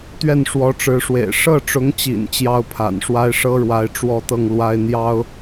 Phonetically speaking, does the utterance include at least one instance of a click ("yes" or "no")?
no